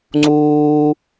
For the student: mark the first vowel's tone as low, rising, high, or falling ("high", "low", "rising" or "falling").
high